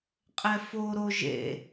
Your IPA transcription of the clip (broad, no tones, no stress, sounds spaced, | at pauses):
qʼ ɛ f o ɾ o ʒ ḛ